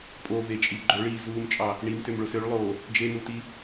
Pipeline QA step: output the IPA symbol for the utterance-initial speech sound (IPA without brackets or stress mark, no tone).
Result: pʼ